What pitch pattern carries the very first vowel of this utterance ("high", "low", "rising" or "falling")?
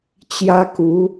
high